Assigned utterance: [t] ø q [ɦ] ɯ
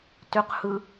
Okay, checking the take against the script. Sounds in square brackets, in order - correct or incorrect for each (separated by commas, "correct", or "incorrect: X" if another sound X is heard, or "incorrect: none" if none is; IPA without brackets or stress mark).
correct, incorrect: h